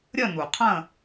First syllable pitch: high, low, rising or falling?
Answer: falling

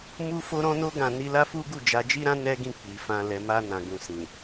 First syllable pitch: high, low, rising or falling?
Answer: high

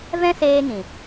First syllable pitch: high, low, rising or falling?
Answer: high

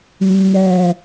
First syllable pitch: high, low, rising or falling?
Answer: low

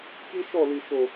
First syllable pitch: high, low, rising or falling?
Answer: high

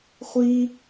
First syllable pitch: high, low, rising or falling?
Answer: high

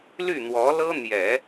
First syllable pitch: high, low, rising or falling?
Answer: falling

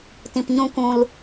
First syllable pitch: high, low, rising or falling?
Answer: low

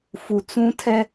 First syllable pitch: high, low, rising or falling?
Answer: low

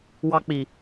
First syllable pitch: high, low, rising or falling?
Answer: high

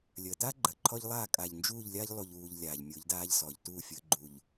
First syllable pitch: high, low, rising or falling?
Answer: low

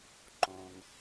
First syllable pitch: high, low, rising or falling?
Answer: low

